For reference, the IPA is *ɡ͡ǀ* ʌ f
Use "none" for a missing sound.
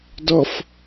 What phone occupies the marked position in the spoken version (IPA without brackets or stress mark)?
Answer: d